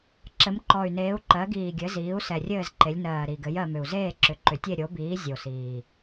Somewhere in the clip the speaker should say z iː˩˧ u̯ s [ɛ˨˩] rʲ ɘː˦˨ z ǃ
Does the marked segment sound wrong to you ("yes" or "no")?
no